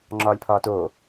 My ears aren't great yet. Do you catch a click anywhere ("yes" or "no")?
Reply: yes